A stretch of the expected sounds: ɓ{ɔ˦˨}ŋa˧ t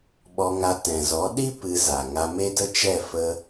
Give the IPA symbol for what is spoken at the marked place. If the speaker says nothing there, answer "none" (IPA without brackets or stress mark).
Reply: ɔ˧